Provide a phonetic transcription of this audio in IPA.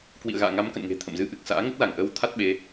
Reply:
k w ḭ˧˨ ə̯ ɣ a̰ː˧˨ ŋ a˨˦ m k ə̰˧˨ n ŋ e̤˨˩ t̪ʰ ə̰˧˨ m z ɨ˧ ʔ ɨ˨˩ k̚ s a̰ː˧˥ ŋ ə˦˥ t̚ l a˧˩ ŋ ʔ əː˧ w t̪ʰ a˦˥ t̚ ɓ e˨˦

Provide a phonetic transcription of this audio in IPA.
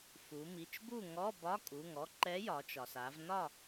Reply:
f u˩˧ m i˩˧˩ t͡ʃ b u˥˨ ŋ ɔ˧˥˧ b ɒ˧˥˧ kʼ u˩˧˩ ŋ ɔ˧˥ ǃ ɛ˧˥ j ɒ˩˧ t͡ʃ ɒ˩ s a˩˧ v n ɒ˥˨

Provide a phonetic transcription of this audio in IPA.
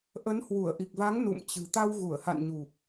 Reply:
ʔ ə˨˦ n h w u˧˩ ə̯ ʔ i˨˩ k̚ v a˨˦ ŋ n ṵ˧˨ m t͡ɕ ɨ̤˨˩ t̪ a˧ w ɣ u˧˩ ə̯ h a̰˧˨ n ɲ u˨˩ p̚

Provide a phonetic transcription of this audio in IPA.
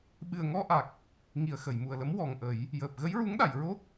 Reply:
ɓ ɨ˨˩ ə̯ ŋ ɔ˧ ʔ a˨˩ k̚ | ŋ i˨˩ ə̯ x ə˨˩˨ j m u˨˩ ə̯ l ə˧˥ m w ɔ˨˩ ŋ ʔ ə˨˩˦ j | j əː˨˩ p̚ ɣ ə˧˥ j ɹ u˧˥ ŋ ɗ a˨˩˨ j ɹ o˦˥ k̚

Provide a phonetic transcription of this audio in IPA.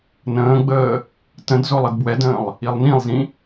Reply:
n ə̃ː ɡ͡b əː | t ə̃ d z o lˠ ə d b w ɛ d ə̃ː lˠ | i lˠ n ĩ lˠ z ĩ

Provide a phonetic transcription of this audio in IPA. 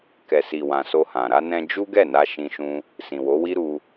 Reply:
k ɛ˨ s i˨ w ã˨ s o˧ h ã˨ ɾ a˧ n ɛ̃˧ d͡ʒ u˦ ɡ ɛ˦˨ n a˧ ʃ ĩ˦ ʃ ũ˦ | s ĩ˨ w o˨˦ w i˦ ɾ u˧

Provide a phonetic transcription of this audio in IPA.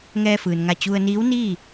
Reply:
ŋ ɛː˧ f ɯː˩ n ŋ a˧˩ t͡ɕ u˧ ə̯ n iː˧˥ w n iː˥˨

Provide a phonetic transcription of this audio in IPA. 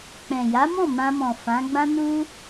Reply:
k͡p ɛ̃˨ j a˨˦ m ɔ̃˦˨ m ã˧ m ɔ̃˨ f ã˨˦ ɡ͡b ã˦ n u˦

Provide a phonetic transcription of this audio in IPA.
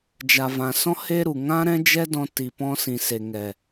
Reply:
d͡ʒ a˨ v ã˨ s ɔ̃˦ h eː˦ ɾ u˨ ŋ ã˦ ɾ ɛ̃˦ d͡ʒ ɛ˦ d ɔ̃˧ t i˨ p ɔ̃˧ s ĩ˨ s e˨ ŋ ɛ˨

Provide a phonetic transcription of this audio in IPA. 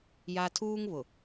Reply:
j a˨ tʰ uː˦ ŋ β ʊ˨

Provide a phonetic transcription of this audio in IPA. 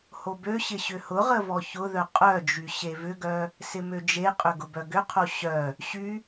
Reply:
h o b ø ɕ ɪ ɕ ʏ h ʊ ʁ ə v ɔ ç ʊ ð œ qʼ œ d͡ʒ y ɕ e v ʏ ɡ œ | s ɪ m ø d͡ʒ e qʼ ʏ ɡ ʊ b œ ɡ ʏ qʰ o ɕ œ | ɕ y

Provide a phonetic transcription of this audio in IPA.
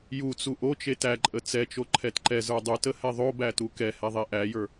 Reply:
j u t͡s u ʔ o t͡ʃ e t æ ǃʼ ə t͡s ɛ t͡ʃ o ǃʰ ɛ t ǃ ɛ z ə˞ dˤ u t ə h ɛ ðˤ o b æ t u k ɛ h ɛ ðˤ e ʔ æ j ə˞

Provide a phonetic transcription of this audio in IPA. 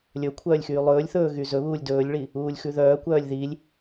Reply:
lʲ ɵ kʷʰ œː lʲ x yː lˠ ɵː lʲ θ ɵː ɣ y z ɵ β uː lʲ d ɵː lʲ ɭ i | uː lʲ x ʉ ð œː kʷ œː lʲ ð i lʲ

